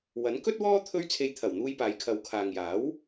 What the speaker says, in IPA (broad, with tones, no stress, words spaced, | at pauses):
wɐ˨˥nkɵ˥t̚wɔː˥ t̪ʰɵ˥ɥ t͡sʰe˧jt̪ʰɐ˨˩wn̪uː˧j paː˨˧jkʰɐ˨˧wkʰaː˨ŋjaː˨˥w